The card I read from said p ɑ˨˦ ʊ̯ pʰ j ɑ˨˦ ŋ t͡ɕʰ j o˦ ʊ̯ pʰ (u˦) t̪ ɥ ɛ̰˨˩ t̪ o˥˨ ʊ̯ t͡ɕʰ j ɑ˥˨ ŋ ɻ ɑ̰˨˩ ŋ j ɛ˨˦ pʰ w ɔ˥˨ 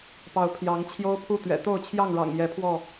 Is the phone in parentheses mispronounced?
yes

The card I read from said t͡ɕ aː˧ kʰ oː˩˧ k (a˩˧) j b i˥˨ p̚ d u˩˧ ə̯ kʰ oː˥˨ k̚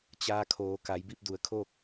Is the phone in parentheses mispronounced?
no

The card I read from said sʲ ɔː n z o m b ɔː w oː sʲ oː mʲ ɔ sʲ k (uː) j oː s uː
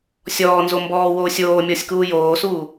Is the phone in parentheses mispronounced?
no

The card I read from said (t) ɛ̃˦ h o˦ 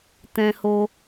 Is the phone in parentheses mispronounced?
no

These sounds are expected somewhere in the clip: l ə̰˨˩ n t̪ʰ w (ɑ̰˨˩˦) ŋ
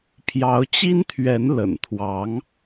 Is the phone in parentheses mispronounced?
yes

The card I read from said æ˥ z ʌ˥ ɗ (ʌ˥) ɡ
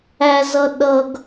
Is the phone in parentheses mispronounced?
no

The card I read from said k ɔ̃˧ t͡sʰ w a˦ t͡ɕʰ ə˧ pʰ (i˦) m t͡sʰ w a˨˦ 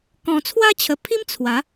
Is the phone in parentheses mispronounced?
no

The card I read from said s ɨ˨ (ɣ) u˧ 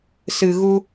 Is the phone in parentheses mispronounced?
no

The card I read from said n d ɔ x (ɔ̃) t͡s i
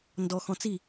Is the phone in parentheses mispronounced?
no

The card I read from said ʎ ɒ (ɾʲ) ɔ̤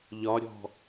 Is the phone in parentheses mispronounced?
no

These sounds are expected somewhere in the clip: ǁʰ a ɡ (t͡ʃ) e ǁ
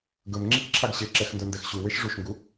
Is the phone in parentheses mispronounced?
yes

